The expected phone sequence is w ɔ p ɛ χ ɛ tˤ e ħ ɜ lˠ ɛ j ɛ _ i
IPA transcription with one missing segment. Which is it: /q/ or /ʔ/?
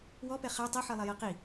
q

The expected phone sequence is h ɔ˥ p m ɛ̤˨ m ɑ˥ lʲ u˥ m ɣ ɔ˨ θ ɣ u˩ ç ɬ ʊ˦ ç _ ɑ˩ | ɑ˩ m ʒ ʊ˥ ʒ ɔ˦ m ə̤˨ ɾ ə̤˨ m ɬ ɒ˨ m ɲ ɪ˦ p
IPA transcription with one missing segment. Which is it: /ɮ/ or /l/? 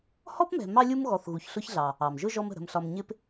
ɮ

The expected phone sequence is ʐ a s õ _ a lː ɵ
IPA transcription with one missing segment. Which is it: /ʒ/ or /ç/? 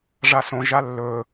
ʒ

